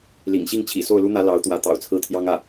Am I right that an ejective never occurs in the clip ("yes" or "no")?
yes